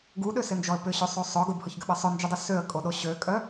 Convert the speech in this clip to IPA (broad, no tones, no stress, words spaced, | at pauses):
ɡuɗøsɪnd͡ʒɔə̯ pʏɕøsˤo sˤʊ ɡʊbhʊçɡʏɓə sˤœnd͡ʒydˤʏ søə̯kʼoɗo ɕøkʼœ